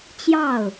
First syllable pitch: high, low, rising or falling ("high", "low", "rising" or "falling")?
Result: falling